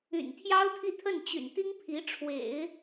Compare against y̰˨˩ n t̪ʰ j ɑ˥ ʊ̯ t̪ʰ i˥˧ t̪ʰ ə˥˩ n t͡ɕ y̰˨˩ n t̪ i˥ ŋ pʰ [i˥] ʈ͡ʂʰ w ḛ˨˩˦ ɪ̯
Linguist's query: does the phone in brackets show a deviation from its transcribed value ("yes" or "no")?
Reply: yes